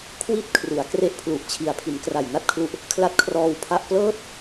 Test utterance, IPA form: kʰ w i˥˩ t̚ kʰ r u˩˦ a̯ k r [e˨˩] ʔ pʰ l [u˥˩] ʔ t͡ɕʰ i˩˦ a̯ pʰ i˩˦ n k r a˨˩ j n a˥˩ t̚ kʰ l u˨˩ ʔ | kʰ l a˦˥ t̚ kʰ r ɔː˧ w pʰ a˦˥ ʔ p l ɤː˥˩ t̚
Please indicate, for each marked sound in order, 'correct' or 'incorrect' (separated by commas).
incorrect, incorrect